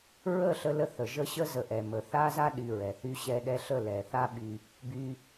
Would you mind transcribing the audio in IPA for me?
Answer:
ɹ ə˦˨ ɬ ə˧ l ə˧ θ ə˨ ʒ ə˦ ɕ ə˦ z ə˨ ʔ ɛ˨ m ə˨ θ a˦ z a˦ ɗ y˧ ɹ ɛ˨ θ y˧ ɕ ɛ˧ ɗ ɛ˧ ɬ ə˦˨ l ɛ˨ θ a˦ ɓ y˧ | b y˧

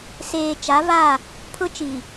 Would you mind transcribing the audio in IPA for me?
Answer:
s eː˨ t͡ʃ a˨˦ v a˦˨ | pʰ ʊ˦ t͡ʃ i˨

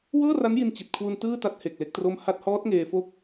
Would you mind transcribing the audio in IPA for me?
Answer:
w ɤː˥˩ r a˦˥ n j i˧ n t͡ɕ i˨˩ t̚ kʰ w u˧ n t ɯː˥˩ t a˦˥ t̚ h e˨˩ k̚ l e˦˥ k̚ t r o˥˩ m h a˦˥ t̚ h ɔː˦˥ t̚ ŋ eː˧ f o˦˥ k̚

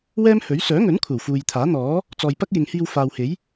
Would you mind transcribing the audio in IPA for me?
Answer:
w ɛː˥ m h ɵ˨˥ ɥ s œː˨˥ ŋ ɵ˨˥ n kʷʰ ɐ˨˩ w f uː˨ j t̪ʰ aː˨˥ n̪ ɔː˨˥ | t͡s ɔː˨ j p ɐ˥ k̚ j ɪ˨ ŋ h iː˧ w f aː˨ w h e˨˥ j

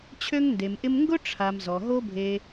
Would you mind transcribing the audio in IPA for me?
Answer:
t͡ɕʰ ø˦ ŋ n d e˨ m ʔ ɪ˦ m ŋ ɡ ʊ˦ ʈ͡ʂʰ a˨ m z ɔ˨ ɦ o˦ bʱ e˧

